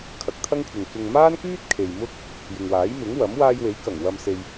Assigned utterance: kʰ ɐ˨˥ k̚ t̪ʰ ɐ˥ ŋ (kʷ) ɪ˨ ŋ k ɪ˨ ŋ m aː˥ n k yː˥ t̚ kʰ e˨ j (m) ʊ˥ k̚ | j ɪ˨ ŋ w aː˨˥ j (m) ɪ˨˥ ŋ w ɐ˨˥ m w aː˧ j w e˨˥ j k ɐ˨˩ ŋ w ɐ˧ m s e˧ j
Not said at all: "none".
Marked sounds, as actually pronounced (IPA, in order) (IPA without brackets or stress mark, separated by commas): kʷʰ, m, m